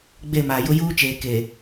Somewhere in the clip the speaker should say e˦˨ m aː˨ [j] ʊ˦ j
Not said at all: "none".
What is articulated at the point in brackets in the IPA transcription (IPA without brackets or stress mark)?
j